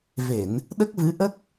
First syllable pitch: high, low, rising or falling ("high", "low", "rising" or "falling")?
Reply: low